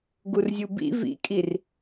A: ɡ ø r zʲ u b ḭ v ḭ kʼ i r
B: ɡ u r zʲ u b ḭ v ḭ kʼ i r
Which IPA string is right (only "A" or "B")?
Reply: B